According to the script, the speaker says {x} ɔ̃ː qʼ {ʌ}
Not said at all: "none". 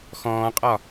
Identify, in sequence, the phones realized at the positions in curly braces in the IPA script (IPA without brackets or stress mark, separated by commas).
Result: x, ɒ